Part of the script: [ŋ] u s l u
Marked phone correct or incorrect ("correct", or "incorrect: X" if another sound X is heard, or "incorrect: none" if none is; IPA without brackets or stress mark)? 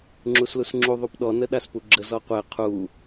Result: incorrect: ŋ͡ǁ